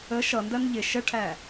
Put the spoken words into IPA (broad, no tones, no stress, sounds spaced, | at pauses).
ə ʃ ʌ n d ɜ n ʎ ɪ ʃ ə ʈʰ æ